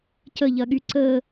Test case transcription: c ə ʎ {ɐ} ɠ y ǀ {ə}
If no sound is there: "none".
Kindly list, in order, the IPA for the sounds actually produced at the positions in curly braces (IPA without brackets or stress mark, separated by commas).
ɐ, ə